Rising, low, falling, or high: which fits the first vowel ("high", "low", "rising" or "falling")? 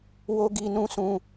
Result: high